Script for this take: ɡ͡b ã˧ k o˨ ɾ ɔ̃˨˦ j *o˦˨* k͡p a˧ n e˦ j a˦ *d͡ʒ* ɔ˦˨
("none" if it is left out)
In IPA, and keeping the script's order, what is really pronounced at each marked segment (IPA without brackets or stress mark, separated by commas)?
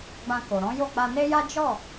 o˦˨, d͡ʒ